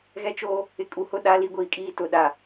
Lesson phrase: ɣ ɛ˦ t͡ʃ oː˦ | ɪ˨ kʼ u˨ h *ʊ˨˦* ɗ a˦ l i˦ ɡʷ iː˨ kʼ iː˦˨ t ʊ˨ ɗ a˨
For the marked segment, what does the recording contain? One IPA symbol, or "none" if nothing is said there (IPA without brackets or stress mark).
ʊ˦